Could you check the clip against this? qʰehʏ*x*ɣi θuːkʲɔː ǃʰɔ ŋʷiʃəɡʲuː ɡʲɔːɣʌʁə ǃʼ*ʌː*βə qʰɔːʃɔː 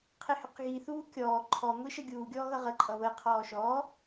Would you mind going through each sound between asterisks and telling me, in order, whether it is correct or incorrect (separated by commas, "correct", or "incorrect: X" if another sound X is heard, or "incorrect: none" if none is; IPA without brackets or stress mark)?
incorrect: q, incorrect: ʌ